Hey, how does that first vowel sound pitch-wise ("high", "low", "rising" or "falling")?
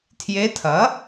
rising